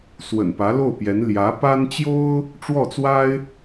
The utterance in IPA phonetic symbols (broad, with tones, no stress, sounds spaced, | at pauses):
s w ə̰˨˩ n p ä˧˥ l o˥˩ ʊ̯ p j ɛ˧˥ n l j ä˧˥ p a˥ n t͡ɕ j o˥ ʊ̯ | ʈ͡ʂ w ɔ˥˩ t͡s w a˥ ɪ̯